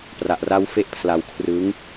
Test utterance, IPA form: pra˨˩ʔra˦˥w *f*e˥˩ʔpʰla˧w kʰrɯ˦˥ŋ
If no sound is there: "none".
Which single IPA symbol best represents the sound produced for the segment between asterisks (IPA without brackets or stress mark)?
f